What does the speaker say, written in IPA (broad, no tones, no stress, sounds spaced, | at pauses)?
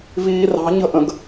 v iː r ɑ̤ ɲ ə̤ ʔ ə̃ ɡ